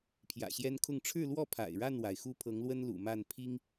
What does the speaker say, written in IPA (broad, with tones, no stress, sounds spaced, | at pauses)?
pʰ j ä̰˨˩ ɕ j ɛ˦ n kʰ ʊ˥˨ ŋ ʈ͡ʂʰ ɻ̩˥˨ l w ɔ˥˨ pʰ a̰˨˩ ɪ̯ ɻ a˥˨ n w a˩ ɪ̯ x u˦ pʰ ɤ˨˦ ŋ l w ə˦ n l ṵ˨˩ m a˥˨ n pʰ i˦ ŋ